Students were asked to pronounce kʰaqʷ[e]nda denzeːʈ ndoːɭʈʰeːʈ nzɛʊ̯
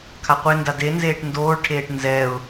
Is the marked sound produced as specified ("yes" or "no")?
yes